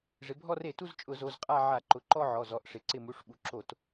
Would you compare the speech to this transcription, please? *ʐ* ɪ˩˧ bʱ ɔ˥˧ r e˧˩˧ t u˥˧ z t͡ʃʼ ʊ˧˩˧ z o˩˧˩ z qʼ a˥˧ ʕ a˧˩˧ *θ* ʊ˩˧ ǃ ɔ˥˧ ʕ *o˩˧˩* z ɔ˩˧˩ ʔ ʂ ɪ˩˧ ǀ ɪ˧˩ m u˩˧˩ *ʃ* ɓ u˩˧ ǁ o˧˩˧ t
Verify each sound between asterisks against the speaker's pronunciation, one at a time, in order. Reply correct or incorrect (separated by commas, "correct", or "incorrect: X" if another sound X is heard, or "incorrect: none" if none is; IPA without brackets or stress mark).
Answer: correct, incorrect: ǃ, incorrect: ɔ˩˧˩, incorrect: ʂ